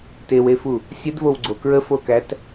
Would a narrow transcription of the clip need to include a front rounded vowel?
no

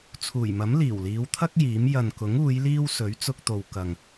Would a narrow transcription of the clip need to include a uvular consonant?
no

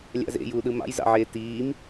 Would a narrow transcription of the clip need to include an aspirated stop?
no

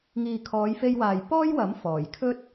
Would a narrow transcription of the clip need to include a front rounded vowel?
no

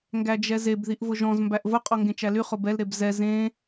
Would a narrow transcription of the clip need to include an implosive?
no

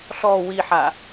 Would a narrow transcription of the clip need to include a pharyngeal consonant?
yes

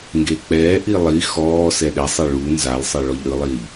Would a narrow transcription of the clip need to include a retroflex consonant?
yes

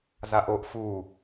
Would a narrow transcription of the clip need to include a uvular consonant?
no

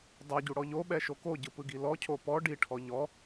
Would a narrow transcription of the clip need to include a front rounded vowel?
no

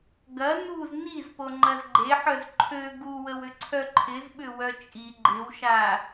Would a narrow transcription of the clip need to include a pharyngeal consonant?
yes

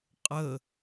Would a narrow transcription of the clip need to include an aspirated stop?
no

